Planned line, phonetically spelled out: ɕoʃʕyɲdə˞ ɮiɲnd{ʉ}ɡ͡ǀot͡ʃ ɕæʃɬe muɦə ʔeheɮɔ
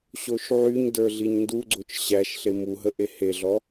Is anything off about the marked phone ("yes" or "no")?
yes